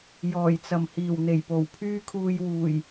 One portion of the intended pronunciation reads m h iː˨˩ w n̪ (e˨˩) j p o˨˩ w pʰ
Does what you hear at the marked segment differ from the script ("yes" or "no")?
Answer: no